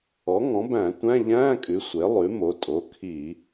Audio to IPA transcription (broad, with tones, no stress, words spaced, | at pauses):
ɔ˩˥ŋɔ̃˩˥bæ̃˧˩˧ tʷæ̃˧˥˧ʎæ̃ː˧˥˧kʼʉ˩˥ sʷe˩˥lˠʉ˩˥mo˩˧˩ tʼo˩˧˩kʰi˧˩˧